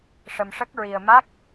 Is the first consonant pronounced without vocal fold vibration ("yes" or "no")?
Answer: yes